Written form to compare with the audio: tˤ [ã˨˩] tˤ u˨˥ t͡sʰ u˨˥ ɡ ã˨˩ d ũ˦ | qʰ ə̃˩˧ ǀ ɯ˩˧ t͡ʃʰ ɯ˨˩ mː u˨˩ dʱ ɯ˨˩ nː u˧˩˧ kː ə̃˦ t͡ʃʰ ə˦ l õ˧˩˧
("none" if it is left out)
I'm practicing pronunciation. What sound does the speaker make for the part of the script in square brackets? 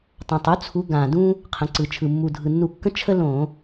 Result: ã˨˩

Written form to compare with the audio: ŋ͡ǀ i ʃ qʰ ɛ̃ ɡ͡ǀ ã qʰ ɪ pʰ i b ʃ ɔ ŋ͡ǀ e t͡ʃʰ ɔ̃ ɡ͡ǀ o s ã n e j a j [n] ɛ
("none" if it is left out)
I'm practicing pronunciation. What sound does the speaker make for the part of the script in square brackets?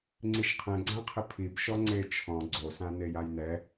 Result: n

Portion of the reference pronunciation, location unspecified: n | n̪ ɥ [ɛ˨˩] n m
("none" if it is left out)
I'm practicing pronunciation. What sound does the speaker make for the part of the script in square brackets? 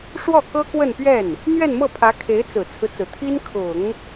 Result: ɛ˥˧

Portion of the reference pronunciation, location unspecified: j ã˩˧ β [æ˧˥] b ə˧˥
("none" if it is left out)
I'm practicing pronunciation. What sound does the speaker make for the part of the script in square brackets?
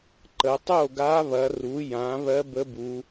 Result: ɜ˧˥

